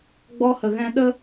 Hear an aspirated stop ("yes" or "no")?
no